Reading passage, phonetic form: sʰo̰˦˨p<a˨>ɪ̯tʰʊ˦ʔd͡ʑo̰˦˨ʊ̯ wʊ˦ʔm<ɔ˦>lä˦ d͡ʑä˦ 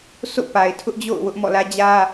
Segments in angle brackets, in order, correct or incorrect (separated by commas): correct, incorrect